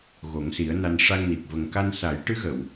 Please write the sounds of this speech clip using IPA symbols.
ɣ o˨˩˦ ŋ s i˨˩˦ ə̯ n a˧ n ʂ a˧ ŋ n i˨˩ k̚ v ə˨˩ ŋ k a˧ n s a˨˩˦ j ʈ ɨ˧˥ ɣ ə˨˩˨ w

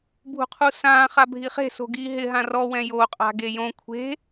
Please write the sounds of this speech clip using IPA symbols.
bʱ ṳ qʰ u s ãː χ a bʱ i χ e̤ s o̤ ɡ iː ɦ ɪ ɦ ã r ɔ w ɛ̃ j o qʼ a̤ ɡ e j õ kʷʰ e̤

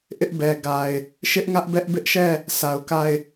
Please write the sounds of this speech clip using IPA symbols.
ʔ ɪ˦ ʔ b ɛ˨ ɡ a˨ ɪ̯ | ʃ ɪ˦ ʔ ŋ ä˦ ʔ b ɛ˦ ʔ b ɪ˦ ʔ ʃ ɛ˦˨ | sʰ a˨ ʊ̯ k a˦˨ ɪ̯

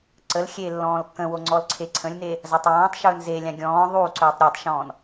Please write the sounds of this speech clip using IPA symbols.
ǀ ə l xʲ eː lː ɔ̃ː l kː ə̃ w o ŋ͡ǀ ɔ l ǀʰ e ǀʰ ə̃ lʲ n e | z a tˤ w ɔ̃ː tˤ ʃ ɵː n z e lʲ ã ɡʲ ɔ̃ː ðˤ u ǀ ɵː tˤ ɾʲ e tˤ ʃ ɔ̃ː n

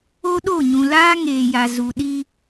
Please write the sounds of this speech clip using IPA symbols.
o˦ ɗ o˦˨ ɲ ũ˨ l aː˦ ŋ eː˨ j a˨ z u˨ ɗ i˦

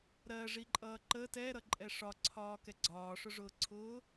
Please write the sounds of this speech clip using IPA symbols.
ɾ ɜ ʐ i ǃʼ ʌː ǃ ə t ɛ ɾ ʌ ǃʼ ɛ ʂ ɒ ǀʰ ɒː k ɛ ɡ͡ǀ ɒː ʂ ʊ ʐ ʊː ǀʰ ʊː

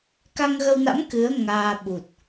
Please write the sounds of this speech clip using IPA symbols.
k a˧ ŋ ɣ ə˧ w n a̰˧˥ m k ɨ˨˦ ə̯ ŋ aː˧ ɓ u˨˩ t̚

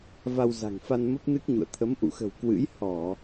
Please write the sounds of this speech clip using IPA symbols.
v a˧ w z a̤˨˩ ŋ f a˧ n m ə˦˥ p̚ n ɨ˦˥ k̚ ɲ ṵ˧˨ ə̯ t̪ʰ ə˨˦ m ʔ ṵ˧˨ x ə̤˨˩ w k w ɨ̰˧˥ j h ɔ˧˩˨

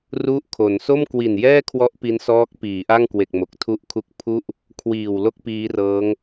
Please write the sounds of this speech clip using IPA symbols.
r u˥˩ ʔ kʰ o˩˦ n s o˥˩ m k w i˨˩ n j ɛː˥˩ kʰ w ɔ˦˥ ʔ p i˦˥ n s ɔː˦˥ k̚ p iː˩˦ ʔ a˥˩ ŋ k w e˨˩ k̚ m o˨˩ k̚ tʰ u˥˩ ʔ kʰ u˥˩ k̚ pʰ u˥˩ ʔ | kʰ w iː˨˩ w l o˥˩ k̚ p iː˦˥ r ɤː˦˥ ŋ

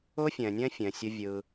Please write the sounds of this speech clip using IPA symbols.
ʊː˦ fʲ ɛ̃ː˨ nʲ ɛ̃ː˦ fʲ ɛ̃˨ sʲ ʊ˦ vʲ ɯ˦

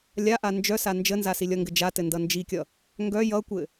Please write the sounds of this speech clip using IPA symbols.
lʲ a ʔ a n d͡ʒ œ s a n d͡ʒ ə n z a s i lʲ ʌ ŋ ɡ ɘ d͡ʒ a t ɘ n d ʌ n d͡ʒ i kʲ ʌ | ŋ ɡ œ j ʌ kʷ ɘ

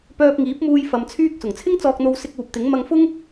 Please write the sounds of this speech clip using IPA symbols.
p œː˧ p̚ ŋ iː˨˥ p̚ m uː˧ j f ɐ˧ m t͡sʰ yː˥ k̚ s ʊ˨˩ ŋ t͡sʰ ɪ˥ ŋ t͡s ɔː˧ k̚ n̪ o˧ w s ɪ˧ k̚ uː˨ p̚ t̪ ɪ˨˥ ŋ m ɐ˧ ŋ f ʊ˥ ŋ

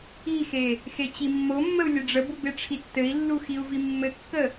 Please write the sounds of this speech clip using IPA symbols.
i x e | x e t͡ɕ i mː o mː ə u̯ lʲ ɘ ɖ͡ʐ ə b u b e ʈ͡ʂʰ i tː ɘ i̯ lː u x i u̯ v i mː ɘ kː ə

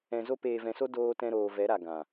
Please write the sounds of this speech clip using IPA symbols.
ɛ̃˧ z o˦ p eː˧ v ɛ̃˧ s o˦ d oː˦ t ɛ̃˦ ɾ oː˧ v ɛ˨˦ ɾ a˨ ɡ ã˨

